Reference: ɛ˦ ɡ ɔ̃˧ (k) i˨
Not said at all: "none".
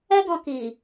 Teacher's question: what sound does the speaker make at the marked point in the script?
k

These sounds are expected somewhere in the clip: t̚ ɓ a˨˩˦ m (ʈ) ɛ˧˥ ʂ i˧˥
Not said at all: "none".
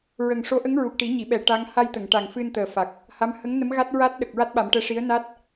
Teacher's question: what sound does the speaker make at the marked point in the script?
ʈ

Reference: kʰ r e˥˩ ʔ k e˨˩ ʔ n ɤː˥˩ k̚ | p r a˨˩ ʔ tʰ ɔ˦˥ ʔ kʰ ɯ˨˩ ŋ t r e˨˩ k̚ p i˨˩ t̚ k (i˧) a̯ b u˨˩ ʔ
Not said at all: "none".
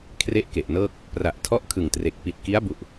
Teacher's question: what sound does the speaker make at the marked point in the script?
i˦˥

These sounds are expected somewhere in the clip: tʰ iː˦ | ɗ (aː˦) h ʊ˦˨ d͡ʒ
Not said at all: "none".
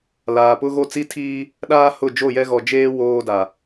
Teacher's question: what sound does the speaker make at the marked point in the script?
aː˦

